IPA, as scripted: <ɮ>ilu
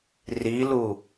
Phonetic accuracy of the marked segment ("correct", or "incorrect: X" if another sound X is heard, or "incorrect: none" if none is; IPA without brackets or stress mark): incorrect: r